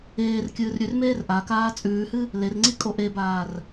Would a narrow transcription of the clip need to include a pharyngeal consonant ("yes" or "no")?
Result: no